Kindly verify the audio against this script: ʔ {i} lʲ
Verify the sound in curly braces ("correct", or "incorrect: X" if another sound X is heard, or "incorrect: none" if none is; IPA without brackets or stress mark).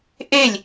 incorrect: e